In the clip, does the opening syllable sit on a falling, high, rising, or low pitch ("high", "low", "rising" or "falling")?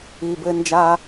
low